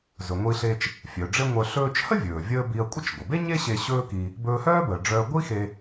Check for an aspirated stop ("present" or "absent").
absent